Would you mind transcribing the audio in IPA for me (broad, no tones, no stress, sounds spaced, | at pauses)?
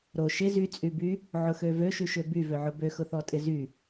ɾ o ʃ ɪ z y t͡sʼ y b y | ʕ ʊ x ø v ø ʃ y ʃ ø b y v ø ʕ ʊ b ø x ʊ θ ɔ tʼ ɪ z y